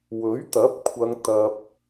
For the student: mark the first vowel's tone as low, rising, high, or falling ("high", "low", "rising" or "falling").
rising